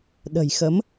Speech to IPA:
ɗ ə̤˨˩ j x ə˨˦ m

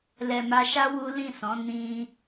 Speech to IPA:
l ɛ˨ m a˧ ʃ a˦ w u˦ l ĩ˦˨ s ɔ̃˨˦ n ĩ˧

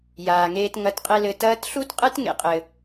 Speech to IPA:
j aː˩ ŋ eː˧ t ŋ ɐ˧˥ t qʼ e˥ l ɘ˧ t ɐː˧˥ t ɬ u˥ t qʼ ɨ˥ t ŋ ḛ˧ qʼ ɘ˩

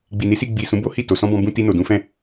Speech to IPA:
ɡ͡b i˨ n i˨˦ s i˧ ɡ͡b i˨ s ũ˨˦ b o˦ h i˦˨ t o˨ s ɔ̃˧ b ɔ̃˧ b ũ˧ t i˧ n o˨ d ũ˨˦ f ɛ̃˦˨

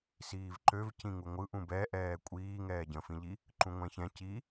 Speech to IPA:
s iː v ǃ ø v c ĩ ŋ u ŋʷ ɯ ʔ ũ b ɛ ʔ ɛː kʷʼ iː ŋ ɛː ɟ ə̃ f ĩ ʎ i | ǃ ũ ŋʷ ɛ̃ ç ɛ̃ c i

